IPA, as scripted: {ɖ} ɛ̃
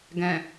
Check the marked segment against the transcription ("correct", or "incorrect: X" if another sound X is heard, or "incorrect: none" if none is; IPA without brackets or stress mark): incorrect: ɡ